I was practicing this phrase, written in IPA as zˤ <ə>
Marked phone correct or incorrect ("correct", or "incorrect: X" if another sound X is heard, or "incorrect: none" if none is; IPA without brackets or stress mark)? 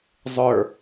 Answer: incorrect: ə˞